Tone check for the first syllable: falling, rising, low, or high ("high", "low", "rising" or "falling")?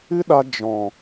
high